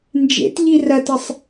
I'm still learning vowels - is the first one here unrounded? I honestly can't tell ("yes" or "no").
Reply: yes